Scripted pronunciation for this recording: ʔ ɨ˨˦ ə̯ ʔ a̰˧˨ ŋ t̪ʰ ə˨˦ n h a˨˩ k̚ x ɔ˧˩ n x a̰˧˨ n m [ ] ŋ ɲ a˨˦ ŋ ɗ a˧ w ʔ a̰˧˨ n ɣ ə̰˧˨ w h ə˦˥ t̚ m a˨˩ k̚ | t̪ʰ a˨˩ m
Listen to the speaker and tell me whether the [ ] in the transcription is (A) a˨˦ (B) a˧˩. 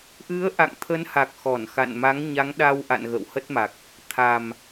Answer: A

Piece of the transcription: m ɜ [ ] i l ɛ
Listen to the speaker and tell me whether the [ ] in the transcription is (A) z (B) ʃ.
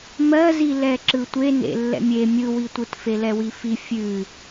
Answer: A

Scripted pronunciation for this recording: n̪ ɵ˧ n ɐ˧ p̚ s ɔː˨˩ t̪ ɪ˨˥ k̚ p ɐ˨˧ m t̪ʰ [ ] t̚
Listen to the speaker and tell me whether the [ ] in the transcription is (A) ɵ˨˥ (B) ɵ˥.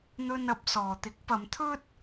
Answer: B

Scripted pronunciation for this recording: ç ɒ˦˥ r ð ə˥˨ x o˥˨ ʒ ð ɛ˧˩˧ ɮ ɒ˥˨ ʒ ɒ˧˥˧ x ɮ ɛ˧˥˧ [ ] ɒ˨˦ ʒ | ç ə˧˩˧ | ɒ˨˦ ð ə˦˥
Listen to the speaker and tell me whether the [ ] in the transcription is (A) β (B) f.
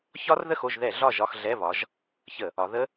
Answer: A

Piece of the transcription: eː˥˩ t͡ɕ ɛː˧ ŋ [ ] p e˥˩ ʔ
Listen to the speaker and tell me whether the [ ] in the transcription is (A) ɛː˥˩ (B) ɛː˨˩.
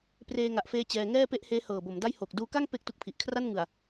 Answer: A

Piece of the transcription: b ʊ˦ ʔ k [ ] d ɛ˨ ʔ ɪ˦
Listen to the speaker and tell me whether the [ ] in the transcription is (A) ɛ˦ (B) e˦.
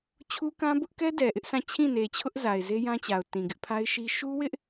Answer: A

